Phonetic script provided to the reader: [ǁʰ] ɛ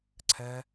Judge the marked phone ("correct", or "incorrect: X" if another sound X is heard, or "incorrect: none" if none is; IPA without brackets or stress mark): incorrect: ǀʰ